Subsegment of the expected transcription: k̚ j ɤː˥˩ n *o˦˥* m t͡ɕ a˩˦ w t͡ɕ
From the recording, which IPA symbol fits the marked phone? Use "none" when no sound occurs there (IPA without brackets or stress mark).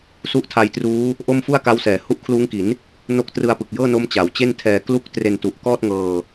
o˦˥